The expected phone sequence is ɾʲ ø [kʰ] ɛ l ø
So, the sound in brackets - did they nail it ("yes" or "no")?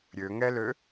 no